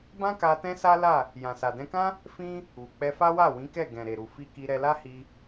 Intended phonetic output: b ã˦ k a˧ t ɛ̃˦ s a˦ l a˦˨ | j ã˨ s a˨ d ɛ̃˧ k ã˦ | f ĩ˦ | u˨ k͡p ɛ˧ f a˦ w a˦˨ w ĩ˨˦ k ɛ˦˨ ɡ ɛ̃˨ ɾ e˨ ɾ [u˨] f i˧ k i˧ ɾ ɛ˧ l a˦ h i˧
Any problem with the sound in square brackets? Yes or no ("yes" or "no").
no